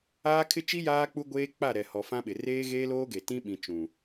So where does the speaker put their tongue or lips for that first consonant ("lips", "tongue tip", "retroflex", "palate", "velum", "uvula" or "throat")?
velum